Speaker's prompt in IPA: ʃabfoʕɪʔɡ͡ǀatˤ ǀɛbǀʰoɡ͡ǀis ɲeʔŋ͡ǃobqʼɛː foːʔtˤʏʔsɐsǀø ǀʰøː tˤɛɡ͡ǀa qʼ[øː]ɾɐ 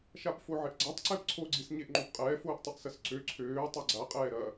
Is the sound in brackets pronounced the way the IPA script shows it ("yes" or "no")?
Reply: no